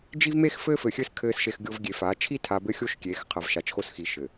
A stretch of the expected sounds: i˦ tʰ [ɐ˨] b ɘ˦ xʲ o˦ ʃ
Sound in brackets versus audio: incorrect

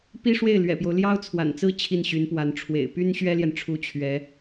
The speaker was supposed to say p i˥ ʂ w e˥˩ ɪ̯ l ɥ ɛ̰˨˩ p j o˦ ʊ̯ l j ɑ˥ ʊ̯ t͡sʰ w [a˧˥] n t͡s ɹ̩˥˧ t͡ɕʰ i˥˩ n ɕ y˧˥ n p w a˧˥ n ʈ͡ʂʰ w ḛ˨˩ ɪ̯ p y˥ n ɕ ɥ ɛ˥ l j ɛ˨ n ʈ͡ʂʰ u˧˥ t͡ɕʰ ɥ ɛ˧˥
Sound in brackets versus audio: incorrect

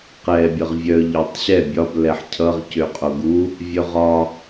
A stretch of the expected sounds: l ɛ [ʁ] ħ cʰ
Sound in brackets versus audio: incorrect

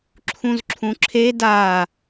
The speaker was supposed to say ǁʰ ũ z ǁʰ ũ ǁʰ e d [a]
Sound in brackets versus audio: correct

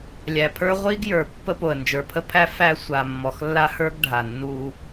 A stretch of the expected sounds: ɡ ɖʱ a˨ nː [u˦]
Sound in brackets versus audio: correct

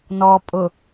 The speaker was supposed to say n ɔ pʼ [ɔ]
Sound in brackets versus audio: incorrect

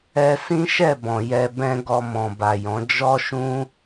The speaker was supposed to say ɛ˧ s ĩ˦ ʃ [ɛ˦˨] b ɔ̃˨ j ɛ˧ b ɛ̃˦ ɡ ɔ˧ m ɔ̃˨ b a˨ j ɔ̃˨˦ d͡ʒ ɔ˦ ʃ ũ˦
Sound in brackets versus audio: correct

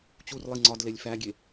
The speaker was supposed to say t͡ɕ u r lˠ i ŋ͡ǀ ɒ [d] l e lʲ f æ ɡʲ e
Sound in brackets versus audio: correct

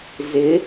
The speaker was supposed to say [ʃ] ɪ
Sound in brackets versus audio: incorrect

